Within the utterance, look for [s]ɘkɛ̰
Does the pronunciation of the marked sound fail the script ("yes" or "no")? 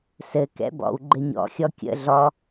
no